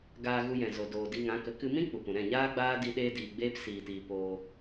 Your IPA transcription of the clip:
ɡ aː˧ ɣ u˧ j ɛ̃˨ z o˨ d oː˨ d i˧ ŋ ã˨˦ k ə˨˦ k ɨ˧ m ĩ˦ k͡p u˨ p ũ˨ ɾ ɛ̃˦˨ ɲ aː˦ ɡ͡b aː˦ d i˧ ɗ eː˦ d iː˧ ɡ͡b eː˦ p s iː˧ t iː˧ p oː˧

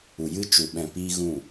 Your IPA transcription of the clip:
u˨ j ɨ˧ t͡ʃ u˨ ɓ ɛ̃˨ p iː˧ ɣ ũ˦˨

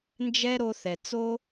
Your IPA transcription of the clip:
n d͡ʒ ɛ˦ ɾ o˧ θ ɛ˨ t͡s oː˦

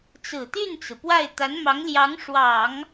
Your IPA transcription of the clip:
t͡s ɹ̩˨˩ t̪ y˥˩ n t͡s ɹ̩˩ p w a˥˩ ɪ̯ t̪ a˧˥ n m ɑ˧˥ ŋ l j ɑ˧˥ ŋ ʂ w ɑ˨˩˦ ŋ

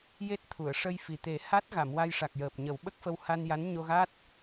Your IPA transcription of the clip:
j e˦˥ t̚ t̪ʰ u˨˩˨ ə̯ ʂ ə˧ j f i˨˩ t̪ e˨˩˦ h a˦˥ t̚ ɣ a˨˩˨ m w a˧ j ʂ a˨˩ k̚ j əː˨˩ p̚ ɲ ə˨˩˦ w ɓ ə˦˥ k̚ f ə˧ w h a˧ n j a˧˥ n ɲ o˧ ɣ a˦˥ t̚

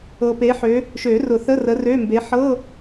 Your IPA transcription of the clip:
ɤ˨ p e˨˥ ħ ø˨˥ | ʃ ø˨˩˦ r ʊ˨˩˦ θ ə˧˥˧ r ə˨˥ r ø˧˥˧ m b e˨˥ ħ ɤ˧˥˧

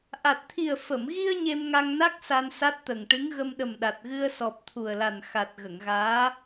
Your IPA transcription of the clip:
ʔ a˨˩ t̚ t̪ʰ i˨˩ ə̯ f ə˨˩˨ m ɣ i˧ ə̯ ɲ e˧ m ŋ a˧ ŋ n a˦˥ k̚ s a˧ n s a˦˥ t̚ t̪ ə˨˩ ŋ ʈ ɨ˧˥ ŋ ɣ ə˧ m ɗ ə˨˩ m ɗ a˨˩ t̚ ɣ ɨ˧ ə̯ s ɔ˨˩ p̚ t̪ʰ u˨˩ ə̯ l a˨˩ n x a˨˩ t̚ ɣ ə˨˩˨ ŋ ɣ aː˧˥

